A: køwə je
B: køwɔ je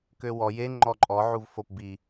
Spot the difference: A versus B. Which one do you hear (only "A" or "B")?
B